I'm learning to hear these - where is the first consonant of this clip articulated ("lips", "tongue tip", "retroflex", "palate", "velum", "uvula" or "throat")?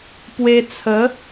lips